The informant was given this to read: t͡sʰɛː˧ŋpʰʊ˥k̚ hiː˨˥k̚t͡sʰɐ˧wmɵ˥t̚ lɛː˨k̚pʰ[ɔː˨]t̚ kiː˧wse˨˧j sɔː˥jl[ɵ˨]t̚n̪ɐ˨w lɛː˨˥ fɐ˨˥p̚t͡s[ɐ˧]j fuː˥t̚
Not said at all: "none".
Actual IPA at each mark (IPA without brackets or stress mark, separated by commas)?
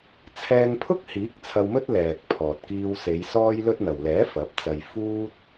ɔː˨, ɵ˥, ɐ˧